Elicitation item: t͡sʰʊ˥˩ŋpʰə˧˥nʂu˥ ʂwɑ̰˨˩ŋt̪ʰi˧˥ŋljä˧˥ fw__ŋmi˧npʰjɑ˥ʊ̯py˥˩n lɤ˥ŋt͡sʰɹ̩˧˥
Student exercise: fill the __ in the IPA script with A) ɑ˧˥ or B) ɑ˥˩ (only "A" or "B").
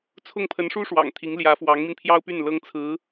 A